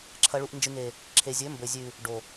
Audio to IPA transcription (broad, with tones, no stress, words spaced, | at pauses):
ǁʰɐ˨ɭu˨ʔnd͡ʒɨ˨ŋe˨ | ǁʰe˨zʲɵ˨˦mbɵ˨ zʲʉ˨ | ɖo˨